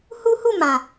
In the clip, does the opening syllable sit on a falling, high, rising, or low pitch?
high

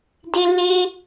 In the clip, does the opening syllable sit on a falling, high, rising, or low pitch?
high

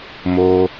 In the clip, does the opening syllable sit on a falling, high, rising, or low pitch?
high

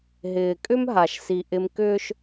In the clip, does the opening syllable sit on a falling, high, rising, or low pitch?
low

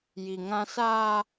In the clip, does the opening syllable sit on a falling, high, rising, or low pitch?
low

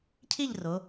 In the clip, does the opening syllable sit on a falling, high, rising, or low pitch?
falling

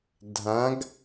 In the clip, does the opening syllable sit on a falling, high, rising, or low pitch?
rising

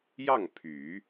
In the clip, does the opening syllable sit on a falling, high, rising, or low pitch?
falling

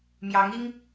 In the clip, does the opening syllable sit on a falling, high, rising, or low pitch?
rising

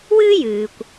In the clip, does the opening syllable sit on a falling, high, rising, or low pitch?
high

